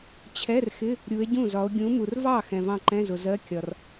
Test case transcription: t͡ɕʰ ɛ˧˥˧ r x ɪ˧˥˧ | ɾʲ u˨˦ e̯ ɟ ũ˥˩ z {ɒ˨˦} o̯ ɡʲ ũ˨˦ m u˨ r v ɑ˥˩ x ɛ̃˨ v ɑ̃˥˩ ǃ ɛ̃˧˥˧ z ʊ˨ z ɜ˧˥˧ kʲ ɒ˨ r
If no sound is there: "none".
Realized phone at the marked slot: ɒ˨˦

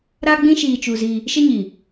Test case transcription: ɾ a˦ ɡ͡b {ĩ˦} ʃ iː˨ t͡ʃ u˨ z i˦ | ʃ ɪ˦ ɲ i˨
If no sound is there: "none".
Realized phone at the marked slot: ĩ˦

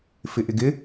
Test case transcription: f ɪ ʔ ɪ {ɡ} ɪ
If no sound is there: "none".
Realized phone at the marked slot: ɡ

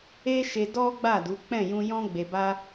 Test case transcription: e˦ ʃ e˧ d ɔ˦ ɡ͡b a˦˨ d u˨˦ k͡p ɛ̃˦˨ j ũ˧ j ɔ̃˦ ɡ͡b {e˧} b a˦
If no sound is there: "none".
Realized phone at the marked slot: e˧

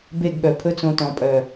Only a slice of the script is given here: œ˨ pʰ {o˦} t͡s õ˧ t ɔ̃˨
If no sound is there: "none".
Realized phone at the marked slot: ɵ˦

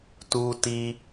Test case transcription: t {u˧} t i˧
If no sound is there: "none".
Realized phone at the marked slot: u˧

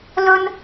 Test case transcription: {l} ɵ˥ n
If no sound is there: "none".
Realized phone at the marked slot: l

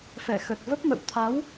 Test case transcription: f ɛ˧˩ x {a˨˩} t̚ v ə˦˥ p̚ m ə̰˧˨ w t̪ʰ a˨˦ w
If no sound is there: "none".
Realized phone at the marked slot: ə˨˩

